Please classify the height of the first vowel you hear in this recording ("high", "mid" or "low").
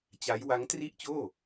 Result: low